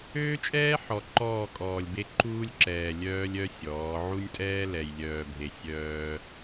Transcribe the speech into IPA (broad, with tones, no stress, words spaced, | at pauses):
øː˦t͡ʃʼɛː˦ ħɔ˨ǃɔː˦˨kʼɔː˨lʲbe˦ ǃuː˦lʲǁɛː˨ lʲœː˦lʲ œ˦ sʲɔː˨˦ ʕu˦nʲtʼɛː˦ lɛ˨jlʲœː˨bʱe˨ sʲœː˦